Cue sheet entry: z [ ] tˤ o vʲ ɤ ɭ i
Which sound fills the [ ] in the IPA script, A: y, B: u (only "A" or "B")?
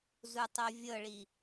B